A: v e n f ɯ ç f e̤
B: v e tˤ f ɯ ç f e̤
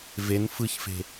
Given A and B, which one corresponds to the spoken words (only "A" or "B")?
A